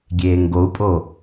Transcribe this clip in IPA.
ɡʲ eː ŋ ɡ o u̯ pʼ o

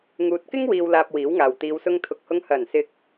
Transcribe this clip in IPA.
ŋ uː˧ t̚ k ɪ˥ ŋ w iː˨ w l aː˨ p̚ w iː˨˥ w ŋ aː˨ w t̪ iː˧ w s ʊ˥ ŋ t̪ʰ ʊ˨ k̚ h ʊ˧ ŋ h ɐ˨˩ n s ɪ˨ k̚

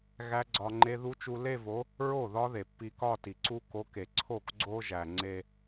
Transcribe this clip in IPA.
ɣ æ˦˥ ɡ͡ǀ ɒ˧ ŋ͡ǃ e˦˥ ð u˦˥ t͡ʃ u˧ l e˥˧ v o˨˥ | ɹ o˥˩ ð ɒ˦˥ ð e˩ pː i˧ k ɒ˥˧ t i˩ ǀ u˦˥ k o˨˥ k e˩ ǀʰ o˥˩ k ɡ͡ǀ o˧ ʒ æ˩ ŋ͡ǀ e˥˧

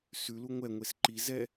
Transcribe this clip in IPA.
s ʉ l u ŋʷ ɛ ŋʷ e s ǃ i z ɛ

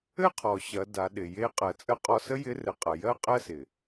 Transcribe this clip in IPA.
ɘ˥ qʰ ɔ˩ ɕ ɐ˩˧ d a˩˧ ɗ ɪ˩ j e˧˥ qʼ ɜ˩ t͡sʼ ə˧ qʼ ɔ˧ s ə˥ j ɪ˧˥ r ɘ˩˧ qʼ ɐ˩ j ɜ˥ qʼ ɜ˥ s ɪ˩

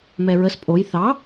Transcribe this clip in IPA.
m ɛ ɹ ə s pʼ o j θ ɑ

